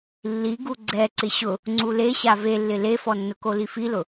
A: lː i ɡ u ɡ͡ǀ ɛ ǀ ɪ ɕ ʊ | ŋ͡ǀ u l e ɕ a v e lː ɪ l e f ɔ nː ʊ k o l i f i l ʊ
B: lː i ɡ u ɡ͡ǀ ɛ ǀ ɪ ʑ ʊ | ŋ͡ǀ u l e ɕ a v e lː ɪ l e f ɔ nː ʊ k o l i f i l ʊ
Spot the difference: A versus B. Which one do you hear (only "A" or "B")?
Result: A